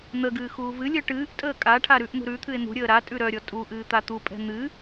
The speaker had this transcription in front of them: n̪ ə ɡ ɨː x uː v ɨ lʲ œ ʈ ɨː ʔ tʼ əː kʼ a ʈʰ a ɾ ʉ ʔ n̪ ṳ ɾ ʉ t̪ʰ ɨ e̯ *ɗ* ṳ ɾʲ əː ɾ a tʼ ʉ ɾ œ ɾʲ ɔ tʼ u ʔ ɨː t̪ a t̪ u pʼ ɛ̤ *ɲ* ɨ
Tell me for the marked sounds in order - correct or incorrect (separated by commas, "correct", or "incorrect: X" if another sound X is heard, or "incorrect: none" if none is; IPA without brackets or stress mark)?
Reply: incorrect: n̪, incorrect: n̪